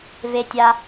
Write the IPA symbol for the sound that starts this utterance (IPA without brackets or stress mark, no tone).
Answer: v